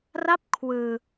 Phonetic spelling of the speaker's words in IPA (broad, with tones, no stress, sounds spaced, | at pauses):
r a˦˥ p̚ kʰ w ɯː˧